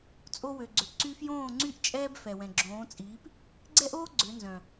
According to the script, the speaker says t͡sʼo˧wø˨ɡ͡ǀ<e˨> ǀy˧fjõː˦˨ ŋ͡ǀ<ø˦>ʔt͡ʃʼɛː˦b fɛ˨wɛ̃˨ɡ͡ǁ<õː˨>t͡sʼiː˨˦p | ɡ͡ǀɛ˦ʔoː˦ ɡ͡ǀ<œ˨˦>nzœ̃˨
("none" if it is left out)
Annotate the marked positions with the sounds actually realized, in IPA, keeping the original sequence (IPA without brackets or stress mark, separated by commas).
ø˨, y˦, õː˨˦, ø˨˦